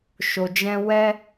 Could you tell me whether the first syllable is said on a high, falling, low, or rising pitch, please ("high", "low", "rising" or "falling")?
low